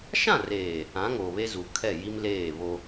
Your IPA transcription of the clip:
ʃ ã˦˨ r eː˨ | ã˨˦ ŋ oː˨ β e˦ z u˨ kʰ ɛ˦˨ j i˦ m l eː˦˨ β o˦

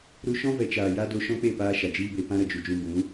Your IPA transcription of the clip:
ɾ u˧ ʃ ɔ̃˦ v ɛ˨ t͡ʃ aː˨ j a˦ d o˧ ʃ ɔ̃˦ k͡p e˦˨ p aː˧ ʃ a˨ d͡ʒ iː˦ b e˧ p ã˦ ɾ ə˨ d͡ʒ u˨ d͡ʒ ũ˧ b ũ˨˦

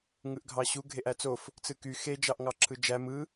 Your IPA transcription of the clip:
ŋ ɯ ʔ ɡʱ ɑ ɕ u ɡʱ e ʔ æ t͡s o f | t͡s ɯ k y x e d͡ʒ ɑ ʔ ŋ ɑ ǁʰ ɯ d͡ʒ æ m ɯ

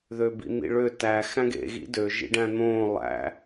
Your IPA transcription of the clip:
ð ø b ḭ n̪ ḭ ɭ ø t æ x æ̃ ɡ ḛ ɣ ḭ d ø ʒ ḭ ɖ æ̃ n̪ õː lˠ æ̰

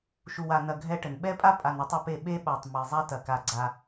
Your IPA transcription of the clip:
ʃ u˨ w a˨ n ɐ˨ ɡʱ ɛ˦ ʈ ɘ˨ n ɓ ɛ˦ pʼ a˦ pʼ a˨ n a˦ tˤ ɐ˦ p e˦˨ ɓ e˦ ɓ a˨ tˤ m e˨ zˤ a˦ t ɐ˨ k a˨ ɡ͡ǀ a˦

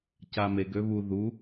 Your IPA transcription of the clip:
c a m e ɡ ø β u ð u

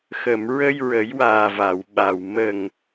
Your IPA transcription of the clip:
x ə˨˩˨ m ɹ ə˧ j ɹ ə˨˩˦ j w aː˨˩ v a˨˩˨ w ɓ a˨˩ w m ə˨˩ ŋ

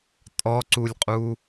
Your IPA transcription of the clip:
tʼ ɔ ǀ u lʲ qʼ u

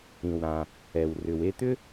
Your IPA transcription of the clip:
ĩ˩ w ɾ ã˩ | ɛ˩ w r ʏ˩ w e˧ t̪ ʏ˥

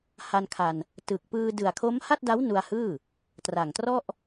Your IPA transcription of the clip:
h a˧ n kʰ a˧ n | t ɯ˨˩ k̚ p ɯː˧ d ɯ˨˩ a̯ kʰ o˦˥ m h a˥˩ t̚ d a˦˥ w n u˧ a̯ h ɯː˥˩ | t r a˨˩ ŋ t r ɔ˥˩ ʔ

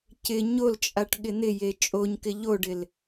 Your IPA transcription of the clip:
c ɪ ɲ o l t͡ʃʼ a ʈ ɠ ɪ n̪ ɪ j e t͡ʃʼ o ɲ k ɪ ʎ o ɖ ɪ l

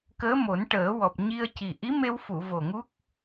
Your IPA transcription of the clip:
k əː˧˥ m o˨˩˦ n ʈ əː˨˩˦ w ɔ˨˩ p̚ ɲ i˧ ə̯ c i˨˩ ʔ i˧˥ m e˧ w f u˨˩˨ v o˨˩ ŋ u˦˥ k̚

